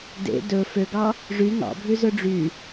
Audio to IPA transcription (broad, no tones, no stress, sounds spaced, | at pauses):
d ḛ d ɵ f ø ɡ ɑ | ʐ y ŋ ɑ̰ bʱ ʉ z ɵ ɖ͡ʐ y